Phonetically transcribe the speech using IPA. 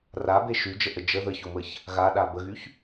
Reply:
r a b e ʃ y d͡ʒ ə ʔ ə d͡ʒ ə ð ə ç o m ə ç | ɣ a ɗ a b ə ɣ y ç

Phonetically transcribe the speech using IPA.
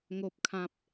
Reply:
ŋ o˨ p̚ kʰ ã˨ p̚

